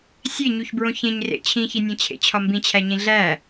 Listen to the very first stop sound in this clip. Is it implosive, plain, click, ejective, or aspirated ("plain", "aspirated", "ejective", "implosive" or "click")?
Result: plain